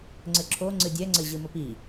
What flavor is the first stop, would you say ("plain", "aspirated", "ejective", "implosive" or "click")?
click